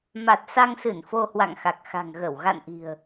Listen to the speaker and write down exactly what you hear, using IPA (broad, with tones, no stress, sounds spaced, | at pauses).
m a˨˩ t̚ s a˧ ŋ s ɨ˧˩ n f o˧ h w a̰˧˨ ŋ x a˨˩ k̚ x a̤˨˩ ŋ ɣ ə˧˩ w ɣ a̰˧˨ n ʔ i̤˨˩ ə̯